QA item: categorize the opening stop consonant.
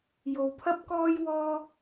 aspirated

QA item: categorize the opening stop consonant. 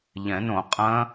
ejective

